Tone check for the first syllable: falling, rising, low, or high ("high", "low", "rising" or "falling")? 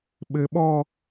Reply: rising